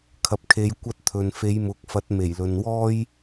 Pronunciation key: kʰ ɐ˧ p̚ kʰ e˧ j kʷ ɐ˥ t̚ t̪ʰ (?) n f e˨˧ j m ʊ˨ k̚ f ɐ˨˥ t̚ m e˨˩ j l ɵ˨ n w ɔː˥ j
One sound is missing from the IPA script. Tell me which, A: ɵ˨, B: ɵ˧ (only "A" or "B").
A